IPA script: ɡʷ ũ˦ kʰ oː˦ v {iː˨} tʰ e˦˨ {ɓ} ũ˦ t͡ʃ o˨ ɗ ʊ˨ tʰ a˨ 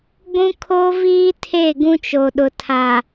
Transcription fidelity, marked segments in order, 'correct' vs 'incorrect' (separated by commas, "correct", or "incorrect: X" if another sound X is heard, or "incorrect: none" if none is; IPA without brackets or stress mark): incorrect: iː˦, incorrect: ɡ